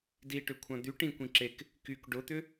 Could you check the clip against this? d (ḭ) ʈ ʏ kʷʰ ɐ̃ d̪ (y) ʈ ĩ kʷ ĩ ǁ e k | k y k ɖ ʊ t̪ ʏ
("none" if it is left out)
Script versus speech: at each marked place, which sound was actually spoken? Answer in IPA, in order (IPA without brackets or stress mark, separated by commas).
i, y